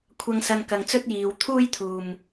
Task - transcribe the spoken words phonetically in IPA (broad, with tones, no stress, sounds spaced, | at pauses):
kʷʰ ɐ˧ ŋ s ɐ˧ n k ɐ˨ ŋ t͡s ɵ˥ t̚ j iː˨ w t̪ʰ uː˥ j t̪ʰ uː˨ m